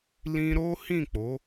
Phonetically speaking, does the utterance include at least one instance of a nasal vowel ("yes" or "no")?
yes